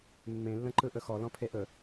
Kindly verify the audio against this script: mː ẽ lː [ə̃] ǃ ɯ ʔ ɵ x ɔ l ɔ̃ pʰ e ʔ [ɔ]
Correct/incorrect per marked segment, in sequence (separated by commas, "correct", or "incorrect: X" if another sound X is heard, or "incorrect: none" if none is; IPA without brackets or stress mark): correct, incorrect: ɵ